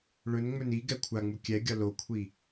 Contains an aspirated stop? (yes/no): yes